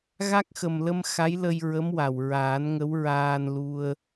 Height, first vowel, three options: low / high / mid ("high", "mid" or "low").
low